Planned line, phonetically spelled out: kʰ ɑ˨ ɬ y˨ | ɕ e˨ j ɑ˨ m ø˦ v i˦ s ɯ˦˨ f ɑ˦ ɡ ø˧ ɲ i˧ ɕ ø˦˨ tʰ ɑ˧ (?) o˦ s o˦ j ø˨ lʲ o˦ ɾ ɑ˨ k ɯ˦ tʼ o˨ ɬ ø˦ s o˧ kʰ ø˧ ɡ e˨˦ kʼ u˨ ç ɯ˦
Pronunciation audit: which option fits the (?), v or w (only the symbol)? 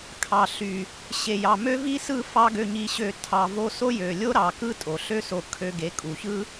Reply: v